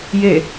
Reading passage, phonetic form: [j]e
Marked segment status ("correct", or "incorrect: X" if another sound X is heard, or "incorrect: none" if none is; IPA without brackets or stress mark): correct